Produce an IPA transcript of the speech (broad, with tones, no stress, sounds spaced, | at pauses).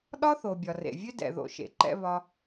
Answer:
ɗ ɒ˦ θ o˨ bʲ ɒ˨ r ḛ˨ vʲ ø˦ d ɛ̰˨ ð o̰˧ ʃ ḛ˨˦ ǃ ɛ̰˦ β ɒ˧